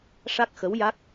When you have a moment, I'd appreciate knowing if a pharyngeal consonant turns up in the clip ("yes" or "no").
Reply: no